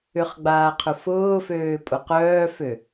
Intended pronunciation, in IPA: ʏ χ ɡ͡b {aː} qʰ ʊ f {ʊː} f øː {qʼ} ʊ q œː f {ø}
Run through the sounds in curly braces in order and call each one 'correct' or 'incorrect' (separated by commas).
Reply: correct, correct, incorrect, correct